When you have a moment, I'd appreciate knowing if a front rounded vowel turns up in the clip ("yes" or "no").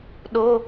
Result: no